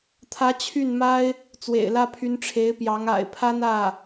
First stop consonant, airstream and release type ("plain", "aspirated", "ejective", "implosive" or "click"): aspirated